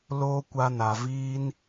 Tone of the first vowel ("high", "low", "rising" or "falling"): high